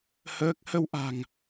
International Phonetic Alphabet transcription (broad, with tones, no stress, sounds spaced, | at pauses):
h əː˦˥ k̚ h ə˧ w ʔ a̤˨˩ ŋ